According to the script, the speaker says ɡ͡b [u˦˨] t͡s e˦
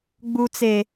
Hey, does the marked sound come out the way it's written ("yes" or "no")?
no